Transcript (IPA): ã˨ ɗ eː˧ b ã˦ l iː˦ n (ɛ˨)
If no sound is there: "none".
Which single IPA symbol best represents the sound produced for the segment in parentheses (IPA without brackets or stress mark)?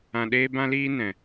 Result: ɛ̃˨